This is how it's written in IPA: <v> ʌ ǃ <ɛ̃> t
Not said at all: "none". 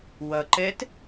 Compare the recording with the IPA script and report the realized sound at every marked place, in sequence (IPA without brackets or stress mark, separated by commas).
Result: w, ɛ